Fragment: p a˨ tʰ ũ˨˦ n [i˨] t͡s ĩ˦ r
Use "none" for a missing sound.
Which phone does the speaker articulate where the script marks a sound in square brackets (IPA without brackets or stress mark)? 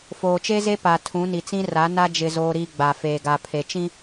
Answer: i˨